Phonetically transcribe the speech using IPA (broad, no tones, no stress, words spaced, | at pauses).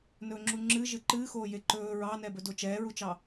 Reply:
nɵːŋ͡ǁuŋ͡ǁɨ ʒɨǃɨːxoːje ǃɵː ɹɑnɛbɵ dot͡ʃɛːɹut͡ʃɑ